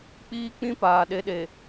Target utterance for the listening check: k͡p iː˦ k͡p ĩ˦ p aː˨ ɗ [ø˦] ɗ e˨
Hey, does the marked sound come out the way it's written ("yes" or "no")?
no